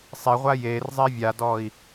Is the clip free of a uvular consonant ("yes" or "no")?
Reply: no